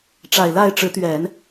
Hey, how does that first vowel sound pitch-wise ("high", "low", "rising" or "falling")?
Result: low